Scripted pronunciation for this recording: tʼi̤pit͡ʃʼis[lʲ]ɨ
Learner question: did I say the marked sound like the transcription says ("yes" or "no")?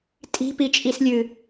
yes